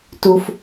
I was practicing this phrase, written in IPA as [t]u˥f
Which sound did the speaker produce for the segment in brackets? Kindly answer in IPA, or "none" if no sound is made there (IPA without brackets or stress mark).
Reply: t